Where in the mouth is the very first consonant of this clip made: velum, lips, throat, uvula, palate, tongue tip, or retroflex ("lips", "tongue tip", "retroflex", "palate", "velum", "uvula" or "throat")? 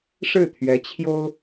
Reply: retroflex